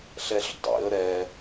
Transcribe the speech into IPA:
ɬ ɛ ɬ dˤ ḭ ə̯ ɾ ɛ

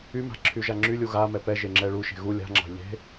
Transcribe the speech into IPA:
y m a̤ ǁʰ y ʒ a ŋ͡ǁ y lʲ u ɣ a m ɛ p ɛ ʒ e ŋ͡ǁ ɛ ɭ u ʃ e̤ ɣ u lʲ a̤ ŋ͡ǁ ɑ̤ ʎ e̤

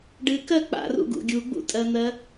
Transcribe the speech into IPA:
ɖ ɨ k ɜ k͡p a̰ r ṵ ɡ ṵ ɡʲ u ɡ͡b ṵ tʼ ɜ n̪ ɜ

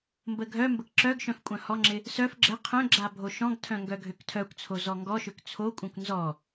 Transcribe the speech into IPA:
m b ə ɡʱ œ m b ə k ǁ œ ɡ ʃ œ̃ f kʷʼ œ̃ h ɔ ŋ͡ǁ ɪ | s œ f ɡ͡ǁ ə qʰ œ̃ ɡ͡ǁ a bʱ o ʃ ɔ̃ ɡ tʰ œ̃ ŋ ɡ œ ɡʱ ø k tʰ œ kʷ t͡sʰ o z ɔ ŋ ɡ ɔ ʃ ø k t͡sʰ o kʷʼ œ̃ kʷ n z ɔ

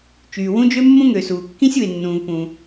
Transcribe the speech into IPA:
t͡ʃ yː˩ w ũ˥ d͡ʒ ø˥ mː ũ˥ ŋ ø˩ s uː˩ kː ĩ˥ sʲ u˩ e̯ nː ũː˩ v p ũː˩

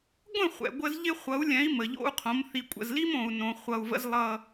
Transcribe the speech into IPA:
ɡʷ ə̃˦˨ χʷ ɛ̰˨ ɡʷ ə˦ z ʎ ɪ˦ χʷ ʌ˨˦ u̯ lʲ ɛ̃˨˦ i̯ m ə˨ ʎ o̰˦ u̯ qʰ õ˨˦ m θ i˨ kʷʼ ə̰˨ z l i˦ m õ˨ u̯ n õ˨ χʷ ʌ˨ u̯ v ə̰˦ z lˠ ʌ˦

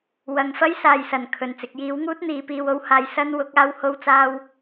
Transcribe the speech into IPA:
w ɐ˨˧ ŋ f ɐ˥ j s aː˨ j s ɐ˨ n kʰ ɵ˨ n t͡s ɪ˧ k̚ j iː˨˥ w ŋ uː˥ t̚ n̪ iː˨˥ p iː˧ w o˥ w h aː˧ j s ɐ˥ n w ʊ˨˥ k̚ aː˥ w h o˥ w t͡s aː˥ w

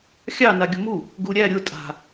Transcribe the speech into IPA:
xʲ ɑ n a ɡʲ ʊ m u | ɡ u ɾʲ æ ɾʲ ʊ tʼ a̤

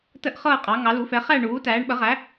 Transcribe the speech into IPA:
t ə˥˨ ʔ χ ɤː˥˨ qʼ ɑ˩˥ ŋ ɑ˩˥ l u˩˥ f ɛ˩˥ χ æ˥˨ ɳ uː˩˥ t æː˩˥ ɳ ɓ ə˩˥ ʁ æ˩˥

